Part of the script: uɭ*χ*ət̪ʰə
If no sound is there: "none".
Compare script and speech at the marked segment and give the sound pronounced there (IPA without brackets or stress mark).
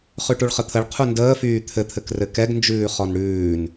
χ